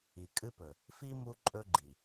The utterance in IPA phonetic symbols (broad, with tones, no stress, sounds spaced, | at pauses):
i˨ kʼ ɨ˦ p ɵ˨ | f i˦ m u˦ ǃʼ ɵ˦ ɡ͡ǃ i˨